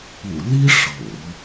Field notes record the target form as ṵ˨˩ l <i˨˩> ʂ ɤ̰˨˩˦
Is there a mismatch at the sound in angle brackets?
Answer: yes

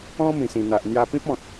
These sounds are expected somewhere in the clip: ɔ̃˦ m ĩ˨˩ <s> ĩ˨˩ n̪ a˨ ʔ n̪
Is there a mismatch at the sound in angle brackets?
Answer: no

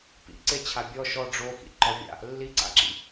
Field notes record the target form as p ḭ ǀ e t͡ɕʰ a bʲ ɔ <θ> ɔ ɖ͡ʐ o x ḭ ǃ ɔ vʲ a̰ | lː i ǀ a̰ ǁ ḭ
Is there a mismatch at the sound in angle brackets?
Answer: yes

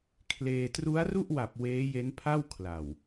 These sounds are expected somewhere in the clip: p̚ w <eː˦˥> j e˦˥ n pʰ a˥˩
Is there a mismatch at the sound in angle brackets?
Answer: no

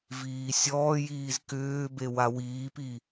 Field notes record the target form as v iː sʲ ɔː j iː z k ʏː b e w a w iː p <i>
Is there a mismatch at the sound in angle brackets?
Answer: no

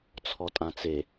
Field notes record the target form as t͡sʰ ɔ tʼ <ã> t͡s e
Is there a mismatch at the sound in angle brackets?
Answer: no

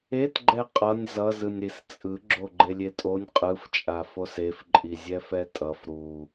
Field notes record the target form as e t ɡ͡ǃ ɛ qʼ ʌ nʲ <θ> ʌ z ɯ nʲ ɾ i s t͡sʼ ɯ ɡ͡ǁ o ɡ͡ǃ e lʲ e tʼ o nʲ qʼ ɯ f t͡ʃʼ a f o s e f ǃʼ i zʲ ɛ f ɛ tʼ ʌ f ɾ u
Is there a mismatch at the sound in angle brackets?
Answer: yes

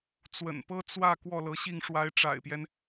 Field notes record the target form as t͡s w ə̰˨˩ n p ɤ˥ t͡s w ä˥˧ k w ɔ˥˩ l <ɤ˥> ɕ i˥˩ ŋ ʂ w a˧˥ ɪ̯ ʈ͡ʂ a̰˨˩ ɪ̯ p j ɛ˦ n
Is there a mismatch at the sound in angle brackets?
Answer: yes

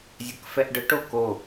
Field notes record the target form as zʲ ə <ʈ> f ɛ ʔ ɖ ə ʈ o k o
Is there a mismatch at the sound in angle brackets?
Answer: yes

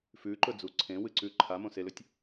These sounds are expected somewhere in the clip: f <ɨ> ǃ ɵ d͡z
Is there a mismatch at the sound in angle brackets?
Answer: yes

